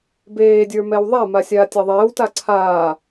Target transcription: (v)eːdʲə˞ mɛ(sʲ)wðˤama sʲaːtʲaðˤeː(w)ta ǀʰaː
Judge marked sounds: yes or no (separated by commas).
no, no, yes